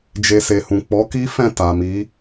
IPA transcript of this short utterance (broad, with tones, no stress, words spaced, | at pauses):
d͡ʒe˧ se˨hũ˨ k͡pɔ˨˦ki˦fɛ̃˦˨ ta˨mi˨˦